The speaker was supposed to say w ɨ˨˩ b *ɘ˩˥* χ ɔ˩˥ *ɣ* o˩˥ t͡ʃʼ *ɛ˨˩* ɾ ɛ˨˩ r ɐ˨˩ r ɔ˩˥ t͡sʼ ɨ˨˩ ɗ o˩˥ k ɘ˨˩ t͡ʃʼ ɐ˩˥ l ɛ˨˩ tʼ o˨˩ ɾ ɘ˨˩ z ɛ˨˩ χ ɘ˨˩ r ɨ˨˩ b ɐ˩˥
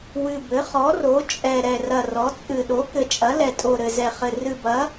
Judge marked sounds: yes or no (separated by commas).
yes, no, yes